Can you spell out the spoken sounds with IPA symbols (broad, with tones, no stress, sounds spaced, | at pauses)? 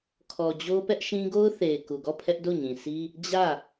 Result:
kʰ ɔ˨ d͡ʑ o˦ p ɛ˦ ʔ ʃ ĩ˦ ɡ o˦ ʊ̯ θ e˨ ɪ̯ k u˨ ɡ ɔ˦˨ pʰ ɛ˦ ʔ d o˦˨ ɲ ĩ˨ s i˦ | d͡ʑ ä˦˨